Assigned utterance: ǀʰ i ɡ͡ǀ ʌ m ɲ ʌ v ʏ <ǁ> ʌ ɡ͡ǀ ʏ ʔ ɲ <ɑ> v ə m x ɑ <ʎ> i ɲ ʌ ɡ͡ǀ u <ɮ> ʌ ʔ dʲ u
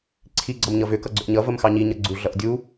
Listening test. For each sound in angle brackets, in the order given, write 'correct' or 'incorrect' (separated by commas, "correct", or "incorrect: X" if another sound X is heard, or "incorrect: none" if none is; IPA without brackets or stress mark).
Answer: incorrect: k, incorrect: ʌ, incorrect: ɲ, correct